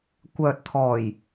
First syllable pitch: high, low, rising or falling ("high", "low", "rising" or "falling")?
low